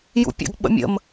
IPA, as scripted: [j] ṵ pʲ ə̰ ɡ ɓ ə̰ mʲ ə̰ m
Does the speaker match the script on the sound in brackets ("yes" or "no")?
yes